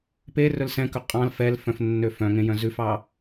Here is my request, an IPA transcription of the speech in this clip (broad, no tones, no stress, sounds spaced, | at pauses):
p e r ɵ l s ɛ̃ k ɵ qʼ ɑ̃ l f ɛ l f œ̃ f nː ø f œ̃ ŋ ẽ j œ̃ z ʉ f ɑ